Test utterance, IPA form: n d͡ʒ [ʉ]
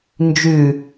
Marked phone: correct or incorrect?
correct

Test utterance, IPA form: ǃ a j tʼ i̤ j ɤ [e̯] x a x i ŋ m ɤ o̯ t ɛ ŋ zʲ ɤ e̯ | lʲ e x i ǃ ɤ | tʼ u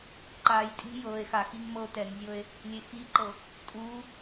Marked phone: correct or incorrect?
correct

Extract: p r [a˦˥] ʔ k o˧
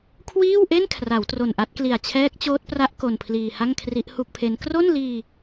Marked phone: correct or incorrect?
correct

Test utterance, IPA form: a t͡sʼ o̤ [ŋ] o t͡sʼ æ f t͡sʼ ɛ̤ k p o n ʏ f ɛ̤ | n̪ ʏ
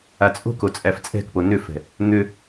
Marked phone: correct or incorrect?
incorrect: k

